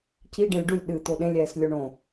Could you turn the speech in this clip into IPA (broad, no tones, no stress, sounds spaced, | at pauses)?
c i ɖ ẽ lʲ ɖ u lʲ ɗ ɨ t̪ o ɗ ẽ lʲ ɛː s lʲ o ɳ õ